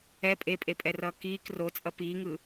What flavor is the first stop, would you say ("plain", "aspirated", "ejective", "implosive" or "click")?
ejective